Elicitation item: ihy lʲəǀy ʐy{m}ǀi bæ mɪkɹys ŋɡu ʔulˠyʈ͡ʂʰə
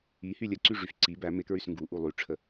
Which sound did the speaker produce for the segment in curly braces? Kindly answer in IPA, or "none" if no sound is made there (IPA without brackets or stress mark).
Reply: f